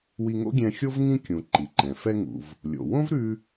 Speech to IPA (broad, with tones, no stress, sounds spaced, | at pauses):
w i˧ ŋ o̰˥ ɡʲ ɛ̃˧ xʲ o˥ v ŋ ĩ˧ kʲ ũ˩ ǃ i˩ ǃ ɛ̃˩ f ɛ˧ ŋ ṵ˩ v | lʲ o̰˩ w õ˥ v ɾ ʉ˧